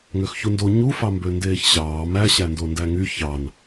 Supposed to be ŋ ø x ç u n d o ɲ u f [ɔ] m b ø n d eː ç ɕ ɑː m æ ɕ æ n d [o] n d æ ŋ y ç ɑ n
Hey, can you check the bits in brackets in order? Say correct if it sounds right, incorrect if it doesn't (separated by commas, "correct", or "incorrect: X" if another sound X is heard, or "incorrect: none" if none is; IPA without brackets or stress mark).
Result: incorrect: ɑ, correct